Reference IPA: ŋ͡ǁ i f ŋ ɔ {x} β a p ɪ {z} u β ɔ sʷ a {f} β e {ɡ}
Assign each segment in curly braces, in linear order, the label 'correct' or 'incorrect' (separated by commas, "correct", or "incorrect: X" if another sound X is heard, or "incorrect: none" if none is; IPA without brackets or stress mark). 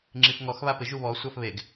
correct, incorrect: ʒ, correct, correct